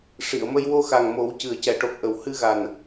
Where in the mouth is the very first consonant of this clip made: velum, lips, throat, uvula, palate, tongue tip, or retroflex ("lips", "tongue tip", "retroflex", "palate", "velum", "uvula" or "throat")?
retroflex